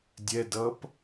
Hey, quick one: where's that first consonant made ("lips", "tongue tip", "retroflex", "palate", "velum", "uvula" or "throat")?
tongue tip